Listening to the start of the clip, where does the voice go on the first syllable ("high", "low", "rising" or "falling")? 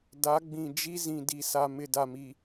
rising